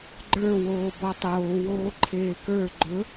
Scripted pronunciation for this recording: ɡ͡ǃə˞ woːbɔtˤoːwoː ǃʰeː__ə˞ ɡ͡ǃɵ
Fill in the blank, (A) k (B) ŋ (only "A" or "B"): A